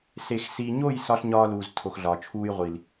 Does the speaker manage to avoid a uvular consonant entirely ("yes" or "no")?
no